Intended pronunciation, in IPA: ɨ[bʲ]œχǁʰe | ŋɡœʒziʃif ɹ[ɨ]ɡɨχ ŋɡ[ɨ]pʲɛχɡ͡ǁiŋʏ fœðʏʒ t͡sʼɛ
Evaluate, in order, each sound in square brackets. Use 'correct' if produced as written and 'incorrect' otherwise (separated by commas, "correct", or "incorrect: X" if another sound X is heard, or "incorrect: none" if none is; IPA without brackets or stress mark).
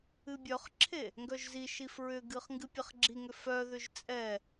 correct, incorrect: ʏ, correct